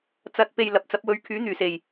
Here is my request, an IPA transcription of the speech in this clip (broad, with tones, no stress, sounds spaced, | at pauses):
t͡s ɐ˨ t̚ p e˨ j l ɐ˨ p̚ t͡s ɐ˨˥ p̚ w ɵ˧ ɥ kʰ yː˨˥ n̪ yː˨˩ s e˨˩ j